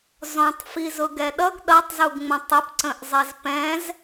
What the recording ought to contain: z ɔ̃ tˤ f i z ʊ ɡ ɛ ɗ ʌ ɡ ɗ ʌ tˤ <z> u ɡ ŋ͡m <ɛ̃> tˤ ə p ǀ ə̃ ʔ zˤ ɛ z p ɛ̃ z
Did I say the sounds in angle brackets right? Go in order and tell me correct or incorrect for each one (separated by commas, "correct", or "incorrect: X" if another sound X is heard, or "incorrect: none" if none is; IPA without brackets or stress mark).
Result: correct, incorrect: ə̃